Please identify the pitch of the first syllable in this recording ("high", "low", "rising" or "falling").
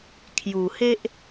low